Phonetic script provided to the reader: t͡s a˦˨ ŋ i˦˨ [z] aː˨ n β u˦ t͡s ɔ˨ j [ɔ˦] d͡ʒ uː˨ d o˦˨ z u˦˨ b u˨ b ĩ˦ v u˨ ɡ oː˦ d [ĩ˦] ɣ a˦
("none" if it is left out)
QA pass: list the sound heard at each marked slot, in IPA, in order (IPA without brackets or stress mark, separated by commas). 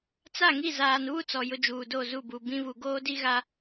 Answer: z, ʊ˦, i˦